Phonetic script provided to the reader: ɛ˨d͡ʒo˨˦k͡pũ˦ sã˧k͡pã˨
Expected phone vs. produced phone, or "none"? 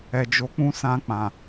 none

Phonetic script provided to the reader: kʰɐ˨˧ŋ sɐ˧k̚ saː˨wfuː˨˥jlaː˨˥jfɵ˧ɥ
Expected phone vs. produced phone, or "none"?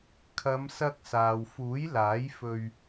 ŋ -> m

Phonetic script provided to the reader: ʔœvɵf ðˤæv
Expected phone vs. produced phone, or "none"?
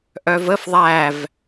ɵ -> ə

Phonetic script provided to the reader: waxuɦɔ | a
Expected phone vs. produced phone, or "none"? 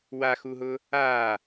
ɔ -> ʊ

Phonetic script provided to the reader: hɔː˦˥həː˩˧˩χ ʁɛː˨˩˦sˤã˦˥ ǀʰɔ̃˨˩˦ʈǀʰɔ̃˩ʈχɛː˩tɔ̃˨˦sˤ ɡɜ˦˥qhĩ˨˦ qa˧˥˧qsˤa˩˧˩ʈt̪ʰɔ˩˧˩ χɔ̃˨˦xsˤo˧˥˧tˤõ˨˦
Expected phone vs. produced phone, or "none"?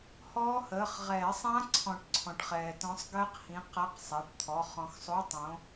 none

